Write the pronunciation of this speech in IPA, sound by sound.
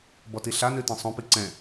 b ɔ t i ɬ a n ʉ t ĩ sˤ õ p i ǀ ɛ̃

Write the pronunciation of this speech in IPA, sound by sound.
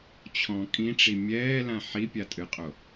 t͡ɕʰ ɔ̃ kʼ ĩ ʈ͡ʂ i mʲ ɛː l ã ħ i pʲ a tʼ ɨ qʼ o

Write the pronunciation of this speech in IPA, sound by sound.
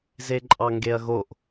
z e ǃʼ ɑ ŋ ɡ e ɐ̯ ɣ o ʔ

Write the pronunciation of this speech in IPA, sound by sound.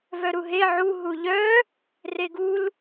v œ ɾ u ɦ e ʕ u ɦ u ʎ œ | r e ɡ u l

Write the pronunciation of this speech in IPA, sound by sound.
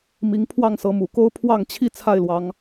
m i˨˦ ŋ pʰ w ɑ˥˨ ŋ s ɤ˨˦ m u˨˩ k o˦ ʊ̯ pʰ w ɑ˥˨ ŋ t͡ɕʰ i˥˨ t͡sʰ a˥˨ ɪ̯ l w ɑ˨˦ ŋ

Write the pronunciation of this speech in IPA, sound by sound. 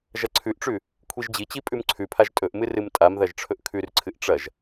ʒ ɐ ǀʰ ʉ ʔ ʈ͡ʂ ʉ | kʷʰ i ʒ d͡ʑ i t͡ɕ i pʼ ʉ m ǀʰ ʉ pʰ a ʒ tʼ ɵ ʔ m ɨ r ɨ m tʼ a m ð ɐ ʒ ʈ͡ʂʰ ɵ ʔ kʰ ʉ r ǀʰ ɨ ʔ ʈ͡ʂ ɐ ʒ

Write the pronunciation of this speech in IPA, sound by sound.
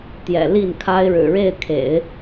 t̪ j ɛ̰˨˩ l i˥˩ n kʰ a˥ ɪ̯ ɻ ɻ̩˨˩ ɻ e˥˩ ɪ̯ kʰ ḛ˨˩˦ ɪ̯

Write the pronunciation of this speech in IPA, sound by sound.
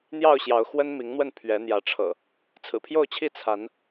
n̪ j ɑ˥˨ ʊ̯ ɕ j ɑ˨˦ ʊ̯ x w ə˦ n m i˨˦ ŋ n̪ w ə˥˨ n pʰ ɥ ɛ˨˦ n̪ j ä˨˦ ʈ͡ʂʰ ɤ̰˨˩ | t͡sʰ ɹ̩˨˩ pʰ j o˥˨ ʊ̯ t͡ɕʰ i˥˨ t͡sʰ a˨˦ n

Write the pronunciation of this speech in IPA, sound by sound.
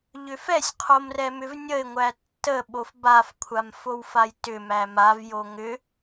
ʎ ʏ f ɛ sʲ qʰ o m r ɛ m ʏ v nʲ ə ɪ̯ ŋʷ æ tː ə ɓ o f b a f kʷʰ a m f o w f a j t ʏ m æ m a v j o ŋ ʏ

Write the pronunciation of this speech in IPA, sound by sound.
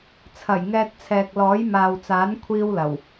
t͡sʰ ɐ˨˩ j ŋ ɛː˧ t̚ t͡sʰ ɛː˨ k̚ l ɔː˨˥ j m aː˨ w t͡s aː˨˥ n kʷʰ iː˥ w l ɐ˨˩ w

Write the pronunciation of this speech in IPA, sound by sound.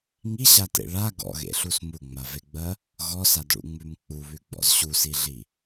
ŋ i ɕ a t ḛ ɭ a ɡ ɔ̰ ɣ ḛ ɬ u s m u ŋ͡m a v e ɡ͡b ɜ | ɣ ɔ s a d ɭ ṵ ŋ͡m ʉ m k͡p u β ʉ ɡ͡b ɔ̰ z ɕ u s i ɮ i

